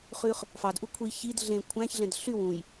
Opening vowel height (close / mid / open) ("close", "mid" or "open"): close